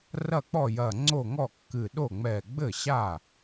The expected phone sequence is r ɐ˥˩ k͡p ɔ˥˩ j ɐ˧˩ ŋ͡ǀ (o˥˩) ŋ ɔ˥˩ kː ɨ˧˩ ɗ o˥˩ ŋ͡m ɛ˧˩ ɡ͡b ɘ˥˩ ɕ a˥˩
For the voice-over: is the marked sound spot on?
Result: yes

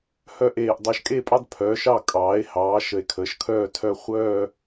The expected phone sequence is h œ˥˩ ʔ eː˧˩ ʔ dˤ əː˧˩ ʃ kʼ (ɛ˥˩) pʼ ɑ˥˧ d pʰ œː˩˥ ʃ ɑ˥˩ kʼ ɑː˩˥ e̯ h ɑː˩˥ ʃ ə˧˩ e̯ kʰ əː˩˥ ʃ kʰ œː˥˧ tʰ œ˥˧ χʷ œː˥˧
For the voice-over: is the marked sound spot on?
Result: no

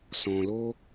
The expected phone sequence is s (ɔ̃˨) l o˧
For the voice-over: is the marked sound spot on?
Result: yes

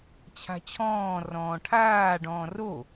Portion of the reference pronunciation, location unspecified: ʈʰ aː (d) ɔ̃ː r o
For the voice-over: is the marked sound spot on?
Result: no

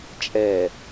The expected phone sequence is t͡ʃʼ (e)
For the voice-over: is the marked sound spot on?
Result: no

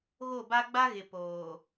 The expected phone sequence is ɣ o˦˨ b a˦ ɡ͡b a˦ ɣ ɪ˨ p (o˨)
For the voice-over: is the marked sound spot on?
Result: no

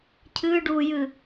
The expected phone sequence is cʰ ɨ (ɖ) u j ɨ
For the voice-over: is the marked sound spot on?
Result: yes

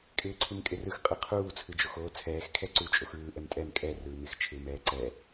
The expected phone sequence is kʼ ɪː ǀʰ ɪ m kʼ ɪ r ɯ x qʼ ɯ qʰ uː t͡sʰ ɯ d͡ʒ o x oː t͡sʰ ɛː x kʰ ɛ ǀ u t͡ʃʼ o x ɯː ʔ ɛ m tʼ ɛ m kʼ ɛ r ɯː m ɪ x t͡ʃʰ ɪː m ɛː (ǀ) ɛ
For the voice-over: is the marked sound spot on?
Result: yes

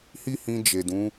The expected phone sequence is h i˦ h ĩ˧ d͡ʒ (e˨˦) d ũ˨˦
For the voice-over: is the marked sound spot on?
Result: no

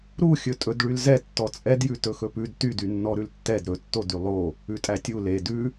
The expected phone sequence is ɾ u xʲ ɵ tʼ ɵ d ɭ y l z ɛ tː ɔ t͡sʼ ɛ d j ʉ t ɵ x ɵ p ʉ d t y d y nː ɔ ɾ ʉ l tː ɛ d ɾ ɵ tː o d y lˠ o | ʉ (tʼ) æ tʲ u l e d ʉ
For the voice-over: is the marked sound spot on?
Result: yes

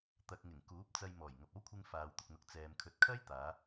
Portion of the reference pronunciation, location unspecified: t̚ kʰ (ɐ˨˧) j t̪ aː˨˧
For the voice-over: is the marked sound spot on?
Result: no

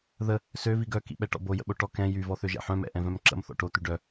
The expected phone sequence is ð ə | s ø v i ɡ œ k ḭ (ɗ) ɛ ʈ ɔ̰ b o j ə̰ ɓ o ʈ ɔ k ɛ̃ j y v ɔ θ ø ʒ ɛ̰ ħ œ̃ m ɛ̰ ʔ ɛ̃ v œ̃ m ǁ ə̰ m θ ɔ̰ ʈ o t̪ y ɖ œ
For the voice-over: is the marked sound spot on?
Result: no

